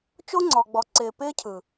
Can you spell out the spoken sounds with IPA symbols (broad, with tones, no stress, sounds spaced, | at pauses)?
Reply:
t͡ʃ o˦ ŋ͡ǀ ɔ˨ ɡ͡b ɔ˨ ǀ ɪː˨ p ɪː˦ cʰ ɯ˨